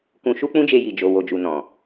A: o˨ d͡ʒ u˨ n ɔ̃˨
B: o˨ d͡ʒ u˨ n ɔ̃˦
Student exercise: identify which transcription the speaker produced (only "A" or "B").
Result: A